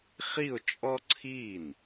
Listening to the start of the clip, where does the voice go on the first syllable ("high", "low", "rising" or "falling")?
falling